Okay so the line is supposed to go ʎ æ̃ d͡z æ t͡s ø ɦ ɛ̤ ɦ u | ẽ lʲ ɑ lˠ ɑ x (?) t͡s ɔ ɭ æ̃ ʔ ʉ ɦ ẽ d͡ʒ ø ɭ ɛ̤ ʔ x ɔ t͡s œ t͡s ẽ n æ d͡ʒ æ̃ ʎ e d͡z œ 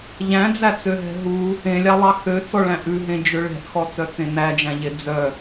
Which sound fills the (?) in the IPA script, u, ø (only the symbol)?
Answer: ø